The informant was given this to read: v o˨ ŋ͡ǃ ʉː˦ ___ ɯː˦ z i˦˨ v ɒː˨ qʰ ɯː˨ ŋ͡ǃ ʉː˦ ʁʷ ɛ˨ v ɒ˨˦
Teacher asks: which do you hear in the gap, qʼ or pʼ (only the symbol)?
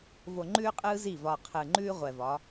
qʼ